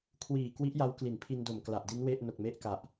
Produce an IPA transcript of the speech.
kʰ w iː˨˩ k w i˦˥ ʔ j a˦˥ w k l i˩˦ n pʰ i˧ n d o˨˩ m k l a˨˩ ʔ d i˦˥ n w e˥˩ ʔ n o˨˩ k̚ m e˦˥ ʔ k a˨˩ ʔ

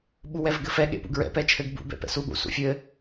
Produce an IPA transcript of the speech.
ɓ u w ɛ v ɡ ɘ f ɛ ɠ ḛ p ṵ ɡ ɹ ɛ̰ p ɛ t͡ʃʰ ɘ ɡ b ṵ b ɛ̰ p ɛ̰ s u ɠ ṵ s ṵ fʲ ɘ

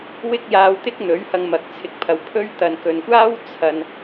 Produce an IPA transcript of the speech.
w ɪ˥ k̚ j aː˧ w t̪ ɪ˥ k̚ n̪ ɵ˨˥ ɥ h ɐ˧ ŋ m ɐ˨ k̚ t͡sʰ ɪ˨ k̚ pʰ ɐ˨ w pʰ ɵ˥ ɥ t̪ ɐ˨ n k ɵ˨ n kʷ aː˥ w t͡sʰ ɐ˧ n

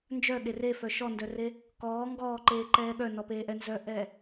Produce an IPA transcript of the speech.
n d͡ʒ œ ɠ e r e f œ ʃ ɔ n d œ r e | k ɔː ŋ ɡ ɔː ǃ eː ǃ ɛː ɠ œ n ɔ p eː ʔ ɛ n z œ ʔ ɛː

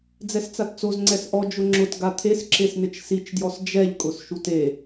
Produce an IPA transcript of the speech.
d͡z ɛ s t͡s a t t͡s o z ŋ͡ǀ ɛ s ʔ ɔ d͡ʒ ʊ ŋ͡ǁ ʊ t ɡ a t̪ʰ e s ǁ e s n ɪ t͡ʃ s i t͡ʃ d j ɔ s d͡ʒ ɛ ʎ kʼ ʊ s ʃ u t e

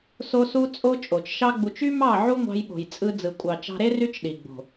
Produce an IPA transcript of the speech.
s o˧ s u˧ t͡sʼ o˧ t͡ʃʼ o˨ t͡ʃ ʃ ɑ˦ ɡ͡b u˧ t͡ʃ y˦ m ɑ˦˨ ʕ u˦ ŋʷ ɑ̤˧ j ɓ o̤˨ j t͡sʼ ɯ˧ d͡z ɯ˨ kʷʼ ɑ˨ t͡ʃ ɑ̤˧ ɾ e˦ r y˦ t͡ʃ ɗ i˨ ɡ͡b o̤˨

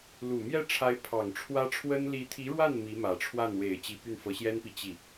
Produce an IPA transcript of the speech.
l u˨˩ m j ɛ˥˩ ʈ͡ʂʰ a˧˥ ɪ̯ pʰ ɑ˨˩ ŋ ʈ͡ʂʰ w ä˥ ʈ͡ʂʰ w ə˥ n l i˧˥ t̪ʰ i˧˥ ɻ w a˥˩ n m i˧˥ m ä˨˩ ʈ͡ʂʰ w a˥˩ n w e˨˩ ɪ̯ t͡ɕ i˧˥ p y˥˩ n f ɤ˧˥ ɕ j ɛ˥ n p i˨ t͡ɕ i˥˩

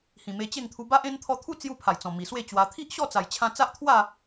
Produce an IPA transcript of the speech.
h ĩ˨˩ m e˧ t͡ɕ e˥˧ ŋ t̪ʰ u˧ b a˦ ʔ ẽ˦ n t̪ʰ ɔ˧ t̪ʰ u˦ t͡s j u˧ pʰ a˨˩ j t͡s ɔ̃˨˩ m i˨˩ s w e˥˧ t͡ɕ w a˧ t̪ʰ i˦ ʔ ɕ ɔ˥˧ t͡s a˨˩ j t͡ɕʰ ã˧ t͡s a˦ ʔ t̪ʰ w a˥˧

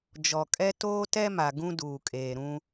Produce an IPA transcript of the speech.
d͡ʒ ɔ˨ kʼ ɛ˦ t oː˦ t ɛ˦ m a˨ ɡ ũ˦ d uː˨ kʼ eː˨ ɾ ũ˦

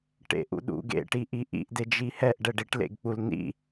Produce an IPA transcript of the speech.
ʈ ḛ ʔ ṵ ɗ ṵ ɡ ḛ ʈ i ʔ i ʔ ḭ ʔ d e d͡ʒ i h ɛ ʔ ɖ ɛ ɖ i ʈ l ḛ ɡ k͡p u l n ḭ

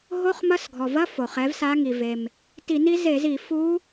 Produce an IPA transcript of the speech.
ɦ o˧˥˧ χ m ɐ˧˥˧ s ɡʱ ɔ˩ v ɐ˧˥˧ f o˩ χ ɛ˩˥ v s a˧˥ ŋ i˩ v e˩ m | t i˧˩˧ n i˧˥ z e˧˩˧ z i˧˩˧ f u˧˥

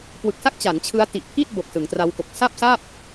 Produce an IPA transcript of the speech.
k w ɯ˨˩ k̚ s a˥˩ k̚ t͡ɕ a˩˦ n t͡ɕʰ ɯ˦˥ a̯ t i˨˩ ʔ pʰ iː˥˩ t̚ b o˨˩ k̚ s ɯ˩˦ ŋ t r a˦˥ w k o˨˩ k̚ s a˥˩ p̚ s a˥˩ p̚

